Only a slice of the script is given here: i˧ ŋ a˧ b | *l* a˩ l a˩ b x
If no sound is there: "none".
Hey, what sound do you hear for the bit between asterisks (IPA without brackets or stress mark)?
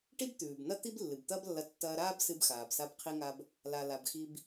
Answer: l